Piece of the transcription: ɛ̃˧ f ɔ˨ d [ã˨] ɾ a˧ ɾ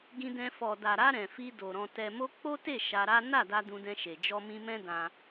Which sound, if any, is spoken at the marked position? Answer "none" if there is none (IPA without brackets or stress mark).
a˨